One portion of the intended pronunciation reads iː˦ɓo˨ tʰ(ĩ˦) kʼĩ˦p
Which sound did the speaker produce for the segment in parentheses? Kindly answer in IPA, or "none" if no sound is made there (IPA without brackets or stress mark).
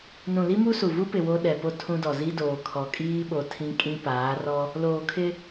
ĩ˦